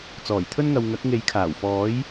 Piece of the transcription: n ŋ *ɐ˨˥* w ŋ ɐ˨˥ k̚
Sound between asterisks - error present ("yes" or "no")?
yes